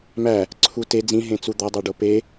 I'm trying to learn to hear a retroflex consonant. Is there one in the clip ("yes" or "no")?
yes